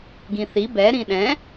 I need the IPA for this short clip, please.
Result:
ɡ ĩ θ i b ɛ ɾ ĩ ɗ ɛ̃

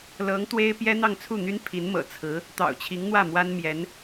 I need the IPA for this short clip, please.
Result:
l ɤ˧˥ ŋ t̪ w e˥ ɪ̯ p j ɛ˥ n̪ ɑ˥˧ ŋ t͡sʰ u˥˩ n̪ y˥ n pʰ i˧˥ n m ɤ̰˨˩ t͡sʰ ɹ̩˧˥ | t̪ ɑ̰˨˩ ʊ̯ t͡ɕʰ i˧˥ ŋ n̪ w ä˥˩ m w a˥ n m j ɛ˧˥ n

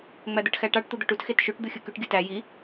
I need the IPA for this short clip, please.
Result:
ŋ͡m æ d̪ ɯ ʈ x æ ʈ ɑ ʈ t̪ u d̪ o ʈ u t x e t ʃ y ʈ d̪ ɯ xʲ ɯ k y ʈ ɡʲ ɯ t æ j i

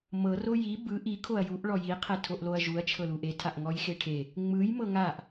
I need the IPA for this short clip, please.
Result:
m ɤ r o j i b ɯ ʔ i kʰ o ɐ̯ j u ʔ ɭ ɔ j i qʰ ɛ tʰ o ʔ l o ɐ̯ ʒ u ɐ̯ t͡ʃʰ ɤ l u ʔ e tʰ a ʔ ŋ ɔ j x e ʈʰ e | ŋ͡m ɯ j m ɤ ŋ a ʔ

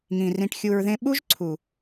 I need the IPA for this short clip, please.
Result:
ŋ ĩ˨ r ĩ˧ ʈ xʲ u˧ ɹ ð ẽ˦ ɓ u˦ ʒ ǀʰ u˨

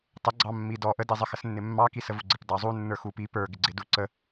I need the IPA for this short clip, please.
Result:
tˤ ə ɡ͡ǀ ɑ mː i d ɔ ʔ ə d i zˤ ə x ə s nː ɪ mː ɑ k i s ə v u ɡ͡ǀ ɪ p d ɑ zˤ u nː ə˞ x u p i p ə˞ ɡ ɪ ɡ͡ǀ ɪ d u ǀ ə

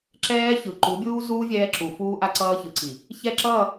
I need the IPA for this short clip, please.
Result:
ǁ ɛː˦ ç ɯ˨ ǃ u˨˦ bʲ uː˦ z uː˦ vʲ ɛː˦ ǁ u˨ f uː˦ ʔ a˦ ǀ ʌː˦ ç ɯ˨˦ ǀ i˨ | ç ɛ˦˨ ǁ ʌː˦˨

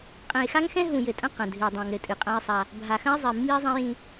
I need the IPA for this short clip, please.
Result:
qʼ ɛ̃˨ e̯ x a˦ ŋ x ɛ̃˦ ɦ ũ˨ j ɘ˨ tʼ ɐ̃˦ q ɐ̃˨ dʱ ɨ˨ o̯ dˤ ã˨ ŋ ɾ ɘ˨ tʼ ɨ˨ qʼ ã˦ e̯ sˤ a˦ | bʱ a˨ x ɐ̃˦ e̯ zˤ i˨ mː i˦ e̯ zˤ ɛ̃˦ j ĩ˦

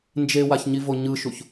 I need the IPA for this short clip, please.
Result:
n d͡ʒ e w a ç ɲ i v o ɲ ɯ ʃ u ç

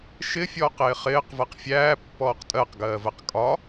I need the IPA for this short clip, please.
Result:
ʃ ɪ fʲ ɔː q ɪː χ ɪː q v ɜ q fʲ æː pː ɔː q tʼ ɜ q ɡ ɜː v ɜ q kʼ ɒ

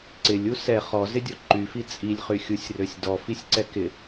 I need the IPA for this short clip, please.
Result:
ǀ ɪ lʲ u s ɛ χ ɔ z ɪ dʲ ɔ ǃ y f i t͡sʼ i lʲ χ y xʲ u sʲ r ø sʲ d ɔ f i sʲ ǀ ɛ k ɪ

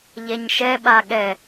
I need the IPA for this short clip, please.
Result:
ʎ ɛ ɲ ʃ ɛ ɓ a ɠ ɛ

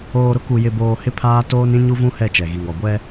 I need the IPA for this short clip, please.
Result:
oː˨ ɾ ʊ˦ k u˨ j ɪ˨ b oː˨ h ɪ˦ pʰ aː˦ t oː˦ n ĩ˦ ɲ u˦ v ũ˦ h ɛ˦˨ t͡ʃ ɛ˨ ɣ i˨ ŋ ɔ˨ ɡʷ ɛ˦

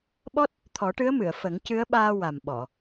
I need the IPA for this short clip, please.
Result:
ɓ ɔ˦˥ t̚ | t̪ʰ ɔ˨˩˦ ʈ ɨ˧˥ ə̯ m ɨ˨˩˨ ə̯ f ə˨˩˦ ŋ c ɨ˧˥ ə̯ ɓ aː˧ w a˨˩ m ɓ ɔ˨˩˨

